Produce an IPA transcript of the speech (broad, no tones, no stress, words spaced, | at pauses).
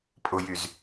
pʼʊjyz